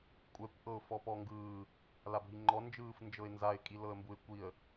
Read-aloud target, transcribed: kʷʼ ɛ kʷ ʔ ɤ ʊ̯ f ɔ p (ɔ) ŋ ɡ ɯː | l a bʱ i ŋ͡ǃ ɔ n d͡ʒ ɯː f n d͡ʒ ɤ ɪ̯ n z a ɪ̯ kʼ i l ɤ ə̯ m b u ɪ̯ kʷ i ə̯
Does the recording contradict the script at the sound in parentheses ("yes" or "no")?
no